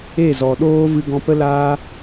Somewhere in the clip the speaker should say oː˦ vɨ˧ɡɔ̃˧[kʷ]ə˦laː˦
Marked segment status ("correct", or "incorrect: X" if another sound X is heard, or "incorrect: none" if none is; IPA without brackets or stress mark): incorrect: p